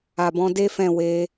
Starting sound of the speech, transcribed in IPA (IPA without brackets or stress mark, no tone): a